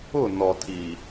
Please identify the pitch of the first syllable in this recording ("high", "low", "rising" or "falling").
falling